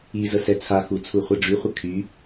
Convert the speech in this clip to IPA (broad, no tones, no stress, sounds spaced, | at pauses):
i z ə s ɛ t͡sʰ a x u t͡sʰ u χʷ ɛ ɖ͡ʐ y χʷ ə kʰ y